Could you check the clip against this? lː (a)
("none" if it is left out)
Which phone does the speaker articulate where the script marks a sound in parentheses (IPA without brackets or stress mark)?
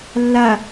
a